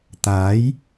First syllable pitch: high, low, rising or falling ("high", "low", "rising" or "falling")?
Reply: rising